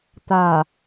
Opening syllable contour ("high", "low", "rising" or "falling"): low